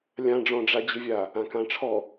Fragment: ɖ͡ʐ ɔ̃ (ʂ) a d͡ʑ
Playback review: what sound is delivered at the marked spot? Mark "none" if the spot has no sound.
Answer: ɖ͡ʐ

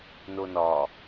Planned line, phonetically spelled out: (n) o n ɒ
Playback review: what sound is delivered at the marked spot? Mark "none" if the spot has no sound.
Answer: n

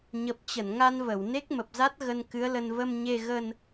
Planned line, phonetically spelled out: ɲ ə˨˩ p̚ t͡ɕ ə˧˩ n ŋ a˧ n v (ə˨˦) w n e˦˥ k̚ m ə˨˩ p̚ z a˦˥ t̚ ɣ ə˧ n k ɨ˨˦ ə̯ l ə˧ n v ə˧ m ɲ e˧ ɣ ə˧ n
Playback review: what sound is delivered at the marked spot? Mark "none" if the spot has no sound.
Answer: ə˧˩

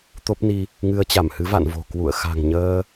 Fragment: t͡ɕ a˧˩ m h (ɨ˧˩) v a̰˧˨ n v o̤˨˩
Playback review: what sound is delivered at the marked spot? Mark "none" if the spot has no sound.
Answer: ɨ˨˦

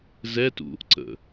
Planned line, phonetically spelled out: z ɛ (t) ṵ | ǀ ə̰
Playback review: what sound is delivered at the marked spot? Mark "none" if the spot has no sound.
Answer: t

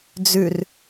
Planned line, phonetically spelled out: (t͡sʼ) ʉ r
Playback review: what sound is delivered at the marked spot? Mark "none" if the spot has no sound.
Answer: d͡z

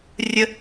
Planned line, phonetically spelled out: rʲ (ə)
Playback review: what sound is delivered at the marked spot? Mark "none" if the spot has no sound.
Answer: ə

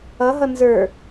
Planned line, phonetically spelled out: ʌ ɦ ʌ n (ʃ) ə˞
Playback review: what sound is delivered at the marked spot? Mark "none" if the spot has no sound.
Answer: z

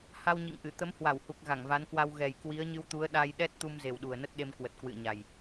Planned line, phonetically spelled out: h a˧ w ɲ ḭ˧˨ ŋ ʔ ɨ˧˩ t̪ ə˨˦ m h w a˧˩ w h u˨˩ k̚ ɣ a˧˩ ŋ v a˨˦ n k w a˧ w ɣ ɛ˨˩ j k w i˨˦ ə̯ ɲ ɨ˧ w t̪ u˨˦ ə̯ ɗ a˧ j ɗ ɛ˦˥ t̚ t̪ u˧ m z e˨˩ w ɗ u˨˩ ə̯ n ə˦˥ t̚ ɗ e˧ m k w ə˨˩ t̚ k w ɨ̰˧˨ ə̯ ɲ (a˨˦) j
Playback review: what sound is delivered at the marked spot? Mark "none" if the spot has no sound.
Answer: a˨˩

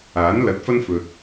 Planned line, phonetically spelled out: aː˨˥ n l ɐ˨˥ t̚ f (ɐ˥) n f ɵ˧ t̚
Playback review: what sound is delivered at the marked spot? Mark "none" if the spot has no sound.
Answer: ɐ˥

